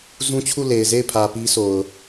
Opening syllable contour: high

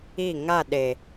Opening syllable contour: falling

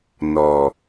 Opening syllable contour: low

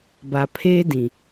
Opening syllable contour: low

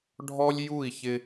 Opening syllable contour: high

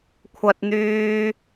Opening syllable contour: high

